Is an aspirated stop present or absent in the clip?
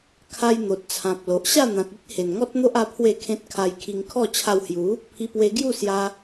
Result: present